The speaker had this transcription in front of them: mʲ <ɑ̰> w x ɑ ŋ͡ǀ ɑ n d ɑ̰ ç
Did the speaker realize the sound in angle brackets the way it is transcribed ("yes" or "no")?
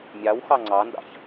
no